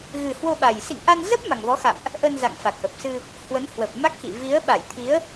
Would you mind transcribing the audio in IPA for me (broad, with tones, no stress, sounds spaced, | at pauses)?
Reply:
ɣ ɨ˨˩ h w o˧ ɓ a˨˩ j s ḭ˧˨ ŋ ʔ a˧ n z ə˦˥ p̚ m a˨˩ ŋ v ɔ˨˦ x a̰˧˨ m ʔ | ʔ ə˧ n z a̰˧˨ ŋ f a˨˩ k̚ ʔ ə˨˩ p̚ s ɨ˧ | h w ə˨˦ n h w ə˨˩ p̚ m a˦˥ k̚ x ḭ˧˨ v i˨˦ ə̯ ɓ a˧˩ j t̪ʰ i˨˦ ə̯